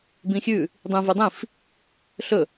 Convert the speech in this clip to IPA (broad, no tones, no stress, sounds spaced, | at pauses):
b ĩ xʲ ʉ | dˤ ĩ v ʉ dˤ ĩ f | ɬ ɵ